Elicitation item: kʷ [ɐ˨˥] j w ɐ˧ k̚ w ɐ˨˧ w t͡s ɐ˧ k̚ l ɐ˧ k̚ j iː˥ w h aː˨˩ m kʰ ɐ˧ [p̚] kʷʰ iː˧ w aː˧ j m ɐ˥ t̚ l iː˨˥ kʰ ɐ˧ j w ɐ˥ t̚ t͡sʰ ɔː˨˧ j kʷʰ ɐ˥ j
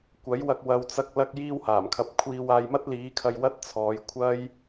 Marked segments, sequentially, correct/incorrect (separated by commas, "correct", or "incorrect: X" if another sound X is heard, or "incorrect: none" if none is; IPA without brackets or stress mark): correct, correct